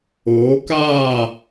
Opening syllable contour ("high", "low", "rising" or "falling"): rising